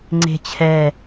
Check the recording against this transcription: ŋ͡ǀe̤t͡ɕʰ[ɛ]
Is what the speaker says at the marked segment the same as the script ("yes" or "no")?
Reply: yes